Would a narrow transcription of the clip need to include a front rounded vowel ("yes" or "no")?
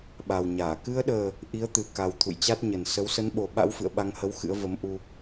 no